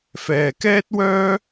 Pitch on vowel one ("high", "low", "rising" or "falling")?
low